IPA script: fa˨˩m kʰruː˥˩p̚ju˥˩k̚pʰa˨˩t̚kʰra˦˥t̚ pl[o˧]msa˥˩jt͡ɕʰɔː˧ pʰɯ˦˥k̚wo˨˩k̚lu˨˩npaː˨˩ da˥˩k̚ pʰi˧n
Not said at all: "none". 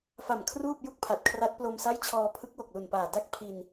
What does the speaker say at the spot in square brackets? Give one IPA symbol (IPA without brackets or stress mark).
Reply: o˧